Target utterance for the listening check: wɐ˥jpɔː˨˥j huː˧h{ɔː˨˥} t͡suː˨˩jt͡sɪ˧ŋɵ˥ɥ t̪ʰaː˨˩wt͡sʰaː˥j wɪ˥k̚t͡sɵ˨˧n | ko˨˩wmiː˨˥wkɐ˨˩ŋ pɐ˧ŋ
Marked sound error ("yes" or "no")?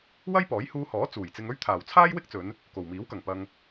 no